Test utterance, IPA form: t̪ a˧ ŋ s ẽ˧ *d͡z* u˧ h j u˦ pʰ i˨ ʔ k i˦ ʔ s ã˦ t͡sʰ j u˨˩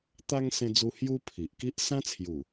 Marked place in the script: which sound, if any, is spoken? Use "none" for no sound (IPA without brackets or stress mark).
d͡z